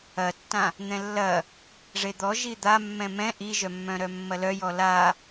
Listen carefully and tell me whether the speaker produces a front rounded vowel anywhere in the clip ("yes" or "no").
yes